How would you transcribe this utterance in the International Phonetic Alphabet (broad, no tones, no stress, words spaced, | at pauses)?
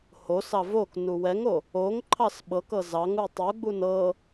hosɑ vok nuwɛŋo | oŋǃʰɑs ɓɤkɤ zɑŋu tˤuɡ͡bun ɤ